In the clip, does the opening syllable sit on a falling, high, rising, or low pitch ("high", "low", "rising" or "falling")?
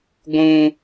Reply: high